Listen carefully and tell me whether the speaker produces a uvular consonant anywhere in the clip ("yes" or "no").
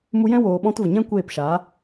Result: no